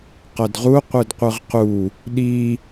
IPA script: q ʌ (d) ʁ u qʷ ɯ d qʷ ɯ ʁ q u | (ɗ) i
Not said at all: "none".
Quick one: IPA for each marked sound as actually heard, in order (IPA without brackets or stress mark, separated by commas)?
d, ɗ